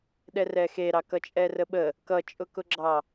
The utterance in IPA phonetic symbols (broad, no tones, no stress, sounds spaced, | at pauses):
ɗ ɛ r ɛ x e ɾ ɑ k ʌ t͡ʃʼ ɛ r ə ɓ ə | k ʌ t͡ʃʼ ʊ k ʊ ɡ͡ǁ ɑ